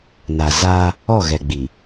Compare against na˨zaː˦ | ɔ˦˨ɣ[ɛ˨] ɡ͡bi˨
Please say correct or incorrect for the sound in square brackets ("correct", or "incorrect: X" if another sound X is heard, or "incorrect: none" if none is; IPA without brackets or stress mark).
correct